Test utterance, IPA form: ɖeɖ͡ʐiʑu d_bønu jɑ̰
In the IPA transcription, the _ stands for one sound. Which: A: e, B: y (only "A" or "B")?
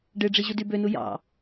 B